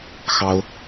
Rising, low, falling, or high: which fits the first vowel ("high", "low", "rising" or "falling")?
high